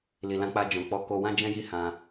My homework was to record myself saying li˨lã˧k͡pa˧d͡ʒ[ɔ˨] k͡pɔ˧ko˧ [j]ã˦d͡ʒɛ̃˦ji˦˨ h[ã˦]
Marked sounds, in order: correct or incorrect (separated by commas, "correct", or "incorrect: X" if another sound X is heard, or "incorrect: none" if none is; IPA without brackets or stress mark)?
incorrect: ɔ̃˨, incorrect: w, incorrect: ã˧